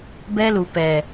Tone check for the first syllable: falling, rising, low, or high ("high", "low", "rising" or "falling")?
high